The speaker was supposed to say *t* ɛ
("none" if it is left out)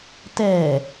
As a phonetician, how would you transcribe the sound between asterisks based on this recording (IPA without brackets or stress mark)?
t